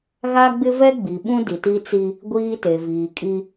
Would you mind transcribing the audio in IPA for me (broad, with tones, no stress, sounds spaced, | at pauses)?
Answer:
ɣ a˦ ɡ͡b ɪ˦ v ɛ˦ ɡ͡b i˨ ɓ ũ˦ d i˨ t i˦ t͡s i˦ | ɡʷ iː˦ t e˨ v iː˨ kʼ i˦